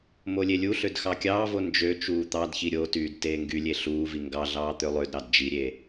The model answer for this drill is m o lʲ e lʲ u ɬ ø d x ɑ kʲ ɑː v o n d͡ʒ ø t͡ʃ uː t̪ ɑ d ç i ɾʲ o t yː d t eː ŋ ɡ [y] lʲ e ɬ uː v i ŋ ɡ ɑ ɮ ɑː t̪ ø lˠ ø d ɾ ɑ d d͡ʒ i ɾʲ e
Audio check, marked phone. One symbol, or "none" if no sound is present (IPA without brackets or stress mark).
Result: y